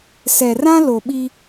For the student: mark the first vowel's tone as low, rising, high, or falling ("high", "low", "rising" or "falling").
low